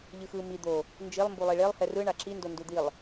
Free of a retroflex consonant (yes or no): no